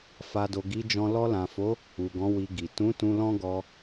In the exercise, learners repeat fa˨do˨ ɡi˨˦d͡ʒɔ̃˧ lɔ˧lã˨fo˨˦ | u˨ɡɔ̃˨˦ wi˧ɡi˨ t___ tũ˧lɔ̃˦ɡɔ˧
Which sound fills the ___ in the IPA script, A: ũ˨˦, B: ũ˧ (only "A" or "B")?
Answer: A